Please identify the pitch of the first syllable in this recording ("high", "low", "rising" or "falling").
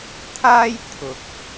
high